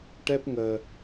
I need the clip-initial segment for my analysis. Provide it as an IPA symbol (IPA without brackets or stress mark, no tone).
ʈ